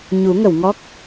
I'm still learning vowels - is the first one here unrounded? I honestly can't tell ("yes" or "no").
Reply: no